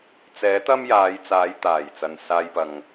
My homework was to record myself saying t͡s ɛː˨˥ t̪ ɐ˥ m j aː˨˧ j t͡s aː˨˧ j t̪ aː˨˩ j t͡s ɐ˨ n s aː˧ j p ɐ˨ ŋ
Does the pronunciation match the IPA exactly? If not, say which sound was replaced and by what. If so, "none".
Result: none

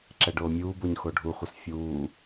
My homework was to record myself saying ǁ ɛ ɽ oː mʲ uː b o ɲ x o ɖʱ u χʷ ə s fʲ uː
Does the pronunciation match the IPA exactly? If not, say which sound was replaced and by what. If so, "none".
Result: ɽ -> ɖ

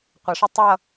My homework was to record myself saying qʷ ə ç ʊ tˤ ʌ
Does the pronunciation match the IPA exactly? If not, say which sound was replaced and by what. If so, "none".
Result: ç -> ʂ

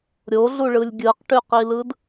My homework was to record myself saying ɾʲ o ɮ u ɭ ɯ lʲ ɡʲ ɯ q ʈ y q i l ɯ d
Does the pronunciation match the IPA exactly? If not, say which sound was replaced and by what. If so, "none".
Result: none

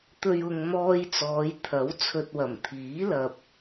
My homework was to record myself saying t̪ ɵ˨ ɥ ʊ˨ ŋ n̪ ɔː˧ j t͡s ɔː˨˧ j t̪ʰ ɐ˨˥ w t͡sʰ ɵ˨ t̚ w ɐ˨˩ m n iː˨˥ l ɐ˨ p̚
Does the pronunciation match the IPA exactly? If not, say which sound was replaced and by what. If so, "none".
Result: n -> t̪ʰ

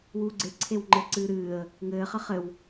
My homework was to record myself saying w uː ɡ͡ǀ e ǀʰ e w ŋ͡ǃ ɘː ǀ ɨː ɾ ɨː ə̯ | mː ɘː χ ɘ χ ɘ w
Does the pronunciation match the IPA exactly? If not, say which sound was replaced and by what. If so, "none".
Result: mː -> ŋ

